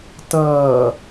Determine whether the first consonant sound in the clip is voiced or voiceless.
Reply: voiceless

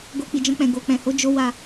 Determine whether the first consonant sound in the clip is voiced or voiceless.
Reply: voiced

